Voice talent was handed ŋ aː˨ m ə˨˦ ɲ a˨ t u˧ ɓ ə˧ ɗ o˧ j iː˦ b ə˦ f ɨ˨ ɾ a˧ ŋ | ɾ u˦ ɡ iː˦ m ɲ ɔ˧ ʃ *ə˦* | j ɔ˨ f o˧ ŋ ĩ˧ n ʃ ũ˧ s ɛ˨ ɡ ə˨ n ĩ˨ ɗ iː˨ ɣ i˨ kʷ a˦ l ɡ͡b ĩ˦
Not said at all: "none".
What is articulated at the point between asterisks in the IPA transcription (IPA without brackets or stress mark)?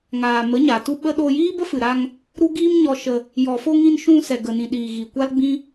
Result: ə˧